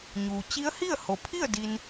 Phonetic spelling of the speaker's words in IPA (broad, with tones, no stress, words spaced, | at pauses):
ɲuː˩ t͡ɕi˧˥ə̯ hi˥˨ə̯ho˩pʰi˥˨ə̯ di˧n